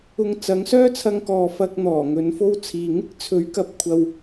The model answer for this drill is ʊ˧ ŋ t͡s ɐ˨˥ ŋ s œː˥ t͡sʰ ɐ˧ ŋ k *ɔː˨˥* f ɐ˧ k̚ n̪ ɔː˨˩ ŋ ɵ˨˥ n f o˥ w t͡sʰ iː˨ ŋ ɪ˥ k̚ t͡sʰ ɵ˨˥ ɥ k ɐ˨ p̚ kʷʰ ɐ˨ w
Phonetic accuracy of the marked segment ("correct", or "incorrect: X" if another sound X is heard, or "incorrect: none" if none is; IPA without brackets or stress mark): incorrect: ɔː˨